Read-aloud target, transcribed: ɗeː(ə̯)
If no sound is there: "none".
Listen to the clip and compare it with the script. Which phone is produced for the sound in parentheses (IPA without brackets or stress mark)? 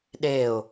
ʊ̯